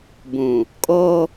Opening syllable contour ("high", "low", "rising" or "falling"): low